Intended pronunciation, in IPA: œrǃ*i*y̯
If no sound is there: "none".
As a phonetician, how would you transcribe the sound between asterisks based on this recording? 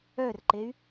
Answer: e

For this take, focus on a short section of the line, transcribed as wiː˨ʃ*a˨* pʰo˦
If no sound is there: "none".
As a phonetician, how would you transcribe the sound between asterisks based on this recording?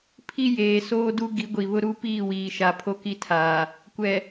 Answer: a˨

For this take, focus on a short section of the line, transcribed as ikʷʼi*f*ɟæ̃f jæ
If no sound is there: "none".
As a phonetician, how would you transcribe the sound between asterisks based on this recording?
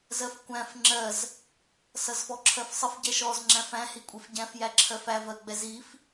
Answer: f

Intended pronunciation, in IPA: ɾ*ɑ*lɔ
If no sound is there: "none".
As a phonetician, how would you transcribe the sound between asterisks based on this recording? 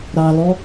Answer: ɑ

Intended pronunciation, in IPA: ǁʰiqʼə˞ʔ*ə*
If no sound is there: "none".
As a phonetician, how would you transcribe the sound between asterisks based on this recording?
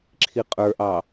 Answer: ɑ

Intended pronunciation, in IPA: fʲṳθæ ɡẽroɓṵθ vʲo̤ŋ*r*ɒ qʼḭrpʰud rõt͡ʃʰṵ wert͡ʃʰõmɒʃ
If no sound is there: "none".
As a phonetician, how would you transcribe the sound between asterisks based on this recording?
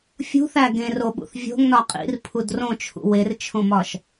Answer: n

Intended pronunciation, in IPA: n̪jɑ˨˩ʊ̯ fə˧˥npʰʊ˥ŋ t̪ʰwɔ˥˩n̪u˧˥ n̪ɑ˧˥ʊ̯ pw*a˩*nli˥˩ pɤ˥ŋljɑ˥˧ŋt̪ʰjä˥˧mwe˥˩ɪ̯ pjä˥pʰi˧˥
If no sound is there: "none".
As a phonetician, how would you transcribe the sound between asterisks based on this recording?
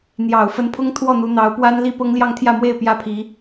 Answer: a˥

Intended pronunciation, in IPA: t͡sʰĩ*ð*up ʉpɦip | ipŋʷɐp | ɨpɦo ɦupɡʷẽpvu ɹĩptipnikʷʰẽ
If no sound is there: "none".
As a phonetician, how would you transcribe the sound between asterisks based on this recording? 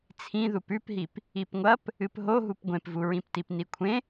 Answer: ð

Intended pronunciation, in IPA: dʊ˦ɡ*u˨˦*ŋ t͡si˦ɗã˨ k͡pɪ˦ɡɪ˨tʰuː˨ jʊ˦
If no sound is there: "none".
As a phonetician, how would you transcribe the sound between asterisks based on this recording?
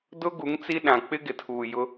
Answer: u˨˦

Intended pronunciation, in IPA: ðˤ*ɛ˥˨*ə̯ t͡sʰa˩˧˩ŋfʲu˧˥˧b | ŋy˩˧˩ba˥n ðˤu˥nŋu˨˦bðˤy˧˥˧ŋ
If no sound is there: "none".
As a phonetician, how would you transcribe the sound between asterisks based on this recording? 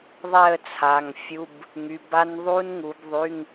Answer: ɛ˥˨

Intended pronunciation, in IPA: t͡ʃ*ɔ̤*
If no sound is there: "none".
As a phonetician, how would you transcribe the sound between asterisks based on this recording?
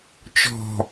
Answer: ɔ̤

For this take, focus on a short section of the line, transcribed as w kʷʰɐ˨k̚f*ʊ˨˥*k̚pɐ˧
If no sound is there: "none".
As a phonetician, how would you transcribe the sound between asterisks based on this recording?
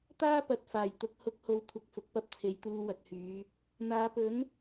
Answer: ʊ˨˥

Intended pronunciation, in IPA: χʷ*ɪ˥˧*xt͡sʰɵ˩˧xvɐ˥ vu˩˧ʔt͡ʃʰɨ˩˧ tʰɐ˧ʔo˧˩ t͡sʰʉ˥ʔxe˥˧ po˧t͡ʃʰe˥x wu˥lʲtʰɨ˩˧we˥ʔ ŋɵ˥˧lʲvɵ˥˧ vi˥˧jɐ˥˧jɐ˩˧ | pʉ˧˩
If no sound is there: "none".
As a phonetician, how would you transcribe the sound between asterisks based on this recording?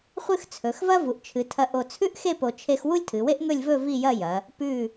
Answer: ɨ˥˧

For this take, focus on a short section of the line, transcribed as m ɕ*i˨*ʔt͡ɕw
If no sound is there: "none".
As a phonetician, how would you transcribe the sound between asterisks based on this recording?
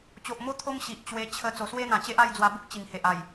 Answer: i˨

